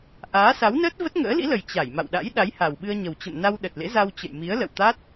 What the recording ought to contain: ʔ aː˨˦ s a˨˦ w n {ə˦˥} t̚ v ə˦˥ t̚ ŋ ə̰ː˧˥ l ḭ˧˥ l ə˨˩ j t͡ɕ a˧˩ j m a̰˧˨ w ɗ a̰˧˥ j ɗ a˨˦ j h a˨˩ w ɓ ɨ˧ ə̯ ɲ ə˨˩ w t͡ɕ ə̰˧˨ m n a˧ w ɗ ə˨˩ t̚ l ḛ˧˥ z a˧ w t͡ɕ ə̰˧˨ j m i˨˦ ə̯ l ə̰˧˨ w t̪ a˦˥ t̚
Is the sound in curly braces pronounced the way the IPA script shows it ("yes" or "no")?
no